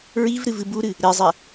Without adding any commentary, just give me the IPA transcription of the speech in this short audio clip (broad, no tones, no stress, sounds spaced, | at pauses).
ɹ i v ɾ ɨ v ɨ b u ɾ ɨ | ɾ e zˤ ɛ